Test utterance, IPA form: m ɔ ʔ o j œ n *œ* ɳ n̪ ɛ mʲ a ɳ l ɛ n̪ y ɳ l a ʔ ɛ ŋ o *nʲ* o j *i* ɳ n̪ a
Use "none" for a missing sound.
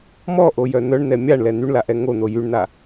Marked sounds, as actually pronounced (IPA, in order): œ, n̪, y

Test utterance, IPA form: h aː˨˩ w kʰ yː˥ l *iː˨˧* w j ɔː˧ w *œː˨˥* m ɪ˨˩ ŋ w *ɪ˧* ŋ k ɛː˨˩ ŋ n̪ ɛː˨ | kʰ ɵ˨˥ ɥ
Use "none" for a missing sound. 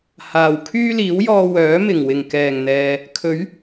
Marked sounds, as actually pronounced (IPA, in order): iː˨˥, œː˨˥, ɪ˨˩

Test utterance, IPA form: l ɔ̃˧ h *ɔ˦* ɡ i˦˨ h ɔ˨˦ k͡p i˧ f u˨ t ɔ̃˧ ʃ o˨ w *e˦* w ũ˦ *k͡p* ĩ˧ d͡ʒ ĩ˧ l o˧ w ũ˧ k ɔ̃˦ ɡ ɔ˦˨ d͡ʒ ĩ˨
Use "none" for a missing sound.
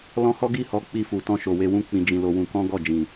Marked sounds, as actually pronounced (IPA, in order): ɔ˦, e˧, k͡p

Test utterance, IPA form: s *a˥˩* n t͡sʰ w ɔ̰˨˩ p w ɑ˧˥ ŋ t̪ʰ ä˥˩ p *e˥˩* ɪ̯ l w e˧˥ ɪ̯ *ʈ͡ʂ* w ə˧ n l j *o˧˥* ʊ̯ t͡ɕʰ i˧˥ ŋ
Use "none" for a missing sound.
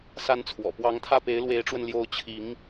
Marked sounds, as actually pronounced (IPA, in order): a˧˥, e˧˥, ʈ͡ʂ, o˧˥

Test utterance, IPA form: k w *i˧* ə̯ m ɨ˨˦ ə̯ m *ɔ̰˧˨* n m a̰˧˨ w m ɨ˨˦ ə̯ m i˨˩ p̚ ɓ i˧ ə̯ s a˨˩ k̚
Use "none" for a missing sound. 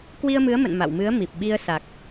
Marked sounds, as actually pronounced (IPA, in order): i˧, ə̰˧˨

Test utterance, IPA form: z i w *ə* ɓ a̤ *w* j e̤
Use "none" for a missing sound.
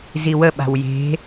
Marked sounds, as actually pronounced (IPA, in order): ə, w

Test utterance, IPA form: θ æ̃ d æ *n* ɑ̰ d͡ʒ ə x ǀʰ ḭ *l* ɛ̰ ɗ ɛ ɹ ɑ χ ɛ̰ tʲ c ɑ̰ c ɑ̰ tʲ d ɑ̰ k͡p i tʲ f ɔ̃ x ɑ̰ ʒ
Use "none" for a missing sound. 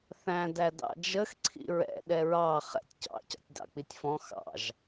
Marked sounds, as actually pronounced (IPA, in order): d, ɹ

